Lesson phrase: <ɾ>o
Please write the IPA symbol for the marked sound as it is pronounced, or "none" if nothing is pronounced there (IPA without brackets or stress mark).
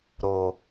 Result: ɾ